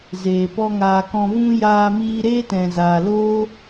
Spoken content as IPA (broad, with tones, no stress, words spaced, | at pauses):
zeː˨ pɔ˦ŋaː˧ kɔ̃˧vũ˦ jaː˦miː˦ ɾeː˦tɛ̃˨zaː˨ loː˦